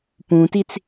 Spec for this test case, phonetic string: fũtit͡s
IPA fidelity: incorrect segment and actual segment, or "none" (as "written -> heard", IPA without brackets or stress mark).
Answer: f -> p